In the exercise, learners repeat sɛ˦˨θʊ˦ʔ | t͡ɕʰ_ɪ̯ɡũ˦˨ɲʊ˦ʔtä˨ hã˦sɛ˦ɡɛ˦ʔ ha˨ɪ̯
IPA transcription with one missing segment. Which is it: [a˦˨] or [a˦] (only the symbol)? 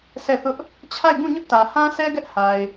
a˦˨